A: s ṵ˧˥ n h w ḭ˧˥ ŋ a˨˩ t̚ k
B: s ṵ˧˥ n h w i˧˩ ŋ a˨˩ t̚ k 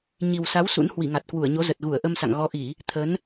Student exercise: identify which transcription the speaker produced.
B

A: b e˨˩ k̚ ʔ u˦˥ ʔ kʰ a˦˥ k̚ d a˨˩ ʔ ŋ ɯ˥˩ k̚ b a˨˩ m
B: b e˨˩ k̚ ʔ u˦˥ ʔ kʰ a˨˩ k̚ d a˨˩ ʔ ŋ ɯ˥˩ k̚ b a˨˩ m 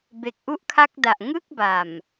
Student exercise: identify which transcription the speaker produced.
A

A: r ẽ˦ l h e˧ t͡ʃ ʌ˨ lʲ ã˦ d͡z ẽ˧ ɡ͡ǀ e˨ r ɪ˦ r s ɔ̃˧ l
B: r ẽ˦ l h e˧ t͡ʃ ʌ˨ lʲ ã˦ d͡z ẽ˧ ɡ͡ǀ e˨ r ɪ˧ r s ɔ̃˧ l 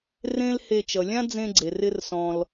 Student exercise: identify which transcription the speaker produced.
B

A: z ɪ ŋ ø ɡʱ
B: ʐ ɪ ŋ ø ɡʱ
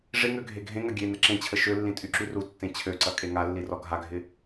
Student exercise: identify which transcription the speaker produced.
B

